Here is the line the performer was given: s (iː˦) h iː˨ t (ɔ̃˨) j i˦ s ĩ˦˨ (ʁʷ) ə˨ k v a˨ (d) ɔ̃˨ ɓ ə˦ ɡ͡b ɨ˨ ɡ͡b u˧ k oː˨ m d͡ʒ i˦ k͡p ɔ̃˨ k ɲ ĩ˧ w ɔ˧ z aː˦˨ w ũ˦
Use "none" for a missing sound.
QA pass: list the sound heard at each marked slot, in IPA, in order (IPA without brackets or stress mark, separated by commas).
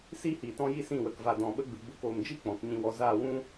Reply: iː˦, ɔ̃˦, w, d